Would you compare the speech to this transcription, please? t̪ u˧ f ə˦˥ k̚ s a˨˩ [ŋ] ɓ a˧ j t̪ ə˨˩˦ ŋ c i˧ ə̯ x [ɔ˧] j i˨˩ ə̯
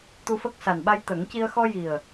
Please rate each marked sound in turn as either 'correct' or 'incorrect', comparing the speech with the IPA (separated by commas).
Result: incorrect, correct